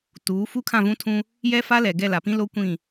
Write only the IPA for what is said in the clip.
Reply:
t uː˨˦ f u˦ kʰ ã˦˨ v ũ˦ tʰ ũ˦ | j ɛ˦ f a˦ l ɛ˨ ɡ ɛ˦˨ l a˨ p ĩ˦ l o˦ kʷ ĩ˦˨

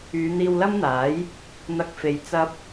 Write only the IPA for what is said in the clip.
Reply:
yː˨˧ n̪ iː˧ w l ɐ˥ m n̪ aː˨˥ j | n̪ ɐ˧ k̚ f e˨˧ j t͡s ɐ˧ p̚

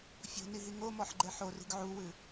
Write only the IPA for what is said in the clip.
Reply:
fʲ o̤ n i ɦ i ŋ o m ɔ ħ ɡ͡ǃ ɛ ħ o r i̤ ɡ ʕ u w ɨ

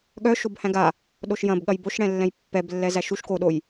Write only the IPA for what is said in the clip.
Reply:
ɠ œ ʃ o b h æ̃ ɡ a | ɗ o ʃ j ɐ̃ b ɠ ɐ j b o ʃ ɽ ɛ̃ lː ɛ̃ j pː ɛ b lː ɛ z æ ʃ u ʃ k o ɗ o j

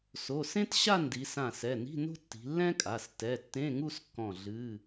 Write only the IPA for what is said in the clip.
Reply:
s o˩˧˩ s ẽ˥ t ɕ a˥˧ n d i˩˧ s ã˧˩ s ɛ˩˧˩ n i̤˧˥˧ n o̤˥ tː i̤˩˧ lː ɛ̃˥ kʼ a˩˧˩ s t ɛ˩˧˩ tː ẽ˧˥˧ ŋ u˥˧ s kː ɔ̃˧˩ ɮ ɨ˧˥˧

